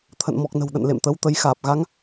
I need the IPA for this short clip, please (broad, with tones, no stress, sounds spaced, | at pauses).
t̪ʰ ə̰˧˨ n m ɔ˨˩ k̚ n ə̤˨˩ w ɗ ə̰˧˨ n l ḛ˧˨ m t̪ ə˨˦ w t̪ ə˧ j x aː˨˩ p̚ ɣ a˨˦ ŋ